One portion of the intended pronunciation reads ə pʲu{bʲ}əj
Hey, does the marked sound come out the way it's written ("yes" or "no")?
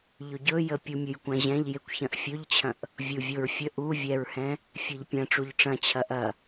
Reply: no